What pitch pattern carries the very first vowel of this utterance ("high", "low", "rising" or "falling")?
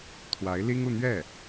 rising